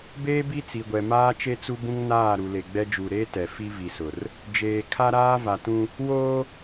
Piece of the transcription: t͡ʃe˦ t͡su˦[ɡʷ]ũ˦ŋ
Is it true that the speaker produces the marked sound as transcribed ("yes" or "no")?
no